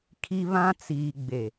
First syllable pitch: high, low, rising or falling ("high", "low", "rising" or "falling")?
high